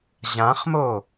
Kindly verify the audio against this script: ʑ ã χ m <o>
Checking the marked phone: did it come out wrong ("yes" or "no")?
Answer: no